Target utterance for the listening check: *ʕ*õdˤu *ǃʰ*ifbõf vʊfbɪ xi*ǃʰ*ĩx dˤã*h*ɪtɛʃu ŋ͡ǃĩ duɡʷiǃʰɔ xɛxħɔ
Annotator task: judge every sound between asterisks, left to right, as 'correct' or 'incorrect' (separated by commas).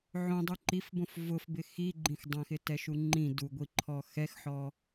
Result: correct, incorrect, incorrect, incorrect